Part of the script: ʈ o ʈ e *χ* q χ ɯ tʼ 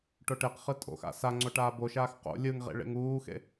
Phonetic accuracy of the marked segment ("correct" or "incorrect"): incorrect